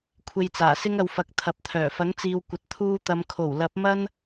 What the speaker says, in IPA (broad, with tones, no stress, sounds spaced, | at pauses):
kʷʰ e˧ j t͡s aː˨˩ s ɪ˥ ŋ ɐ˧ w f ɐ˨˥ k̚ t̪ʰ ɐ˨˥ p̚ t̪ʰ œː˨˩ f ɐ˨˥ ŋ t͡s iː˨ w kʷ ɐ˨ t̚ t̪ʰ uː˧ t̪ ɐ˨˧ m kʰ o˨˩ w l ɐ˨˥ p̚ m ɐ˥ n